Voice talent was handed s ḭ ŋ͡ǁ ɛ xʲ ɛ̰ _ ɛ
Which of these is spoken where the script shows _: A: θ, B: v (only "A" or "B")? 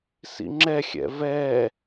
B